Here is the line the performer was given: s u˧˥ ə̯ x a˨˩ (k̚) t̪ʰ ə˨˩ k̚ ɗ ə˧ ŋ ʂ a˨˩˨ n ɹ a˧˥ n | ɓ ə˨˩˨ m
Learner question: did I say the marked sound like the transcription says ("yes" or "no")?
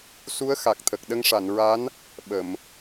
yes